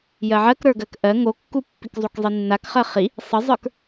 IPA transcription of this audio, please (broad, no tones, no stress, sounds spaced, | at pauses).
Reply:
j ɜ ʕ ɜ k ɾ ə˞ ɡ ɜ k ʔ ɜ ŋ o kː u pː i k zˤ u k zˤ i nː a k χ ɜ χ i | sˤ ə zˤ ə˞ k